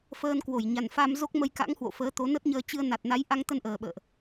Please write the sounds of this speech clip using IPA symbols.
f əː˧ n k w o˧˩ j ɲ a˨˩ n f a˧ m z o˦˥ k̚ m ə˧ j k a̰˧˥ ŋ h w o̰˧˨ f əː˨˦ t̪ o˨˦ n ə˦˥ t̚ ɲ əː˧ t͡ɕ ɨ˧ ə̯ n a˨˩ t̚ n a˨˦ j ʔ a˧ ŋ t̪ ə˧ n ʔ əː˨˩ ɓ ə̰ː˧˨ ʔ

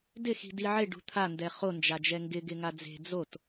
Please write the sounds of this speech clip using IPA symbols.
d ɪ x i̤ d i ʕ e ɖ ṳ t̪ʰ a n d ɛ χ o n d͡ʒ a d͡ʒ ɛ ŋ ɡ ɪ ɡ ɪ ŋ a d͡z e̤ d͡z o t

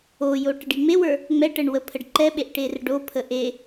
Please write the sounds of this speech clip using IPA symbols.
o j o ʈ ə ɖ i ŋ͡m e w ə˞ | ŋ͡m ɛ ʈ ə ɳ w ə pʰ ə ɖ ǃ ɛ ɓ e ʔ ʈ e r ɖ o pʰ ə ʔ e

